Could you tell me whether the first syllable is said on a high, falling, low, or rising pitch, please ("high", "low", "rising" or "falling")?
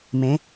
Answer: rising